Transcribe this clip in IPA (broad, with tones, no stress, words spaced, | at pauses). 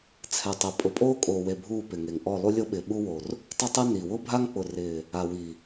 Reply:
t͡sʰɛ˨ tˤɛ˨pʼʊ˨˦pʼoː˦ kʼoː˨we˨ bʱuː˦˨pɪ˨ŋe˨ŋ ʔɔ˦˨lˠu˦lʲo˦ɓɪː˨ ɓu˦wo˨r | tˤʊ˦tˤɛ˦ ni˨ wʊ˦bʱa˦ŋk͡pʊ˨rɪː˨ | a˨wi˨